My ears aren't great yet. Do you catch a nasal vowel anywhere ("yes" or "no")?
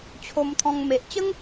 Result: yes